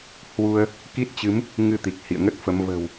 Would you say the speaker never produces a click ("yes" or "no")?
yes